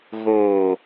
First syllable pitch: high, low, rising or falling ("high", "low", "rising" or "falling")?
low